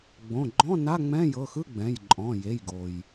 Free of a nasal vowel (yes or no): no